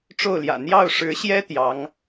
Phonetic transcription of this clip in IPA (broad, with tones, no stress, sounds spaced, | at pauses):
ʈ͡ʂ o˥˩ ʊ̯ l j ä̰˨˩ n̪ j ɑ˥˩ ʊ̯ ʂ ɻ̩˧˥ ɕ j ɛ˥ t̪ j ɑ˧˥ ŋ